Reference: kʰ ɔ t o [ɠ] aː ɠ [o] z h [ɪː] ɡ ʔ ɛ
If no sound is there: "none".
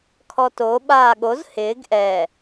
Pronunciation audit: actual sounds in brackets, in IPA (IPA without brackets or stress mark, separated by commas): ɓ, o, ɪː